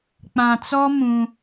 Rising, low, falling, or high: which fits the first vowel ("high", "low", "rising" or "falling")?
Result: low